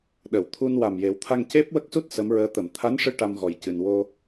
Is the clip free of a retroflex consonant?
no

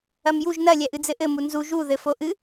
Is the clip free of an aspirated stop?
yes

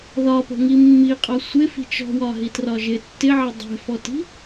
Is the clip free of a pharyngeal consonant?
no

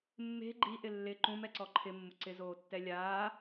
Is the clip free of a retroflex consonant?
yes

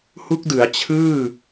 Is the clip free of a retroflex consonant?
yes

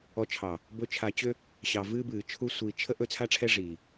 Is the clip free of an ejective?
yes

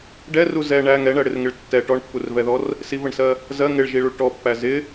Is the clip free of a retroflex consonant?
no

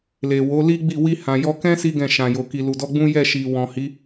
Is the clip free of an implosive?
yes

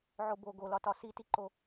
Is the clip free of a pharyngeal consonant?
no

